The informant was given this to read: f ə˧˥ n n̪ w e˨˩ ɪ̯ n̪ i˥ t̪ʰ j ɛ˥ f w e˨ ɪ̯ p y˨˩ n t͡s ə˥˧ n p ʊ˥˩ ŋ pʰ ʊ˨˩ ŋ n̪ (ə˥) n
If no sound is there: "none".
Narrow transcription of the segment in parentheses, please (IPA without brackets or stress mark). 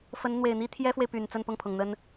ə˥